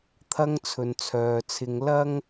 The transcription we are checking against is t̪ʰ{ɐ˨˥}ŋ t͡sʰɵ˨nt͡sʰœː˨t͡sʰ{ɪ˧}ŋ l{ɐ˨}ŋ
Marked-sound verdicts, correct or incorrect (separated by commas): incorrect, correct, incorrect